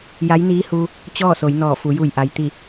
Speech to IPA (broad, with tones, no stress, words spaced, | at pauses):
ja˧˥jniː˧˥huː˧ | t͡ɕɔː˥˨so˩˧j nɔː˧˩fu˩˧ju˧˩jʔa˩j t̪i˧˩